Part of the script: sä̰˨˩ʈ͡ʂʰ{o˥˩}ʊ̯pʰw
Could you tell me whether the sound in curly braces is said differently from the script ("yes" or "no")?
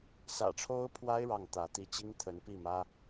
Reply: yes